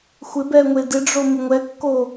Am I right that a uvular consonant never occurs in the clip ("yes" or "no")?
yes